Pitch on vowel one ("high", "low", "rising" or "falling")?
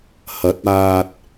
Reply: rising